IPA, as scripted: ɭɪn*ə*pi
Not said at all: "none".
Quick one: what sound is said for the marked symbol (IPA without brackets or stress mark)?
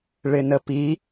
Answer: ə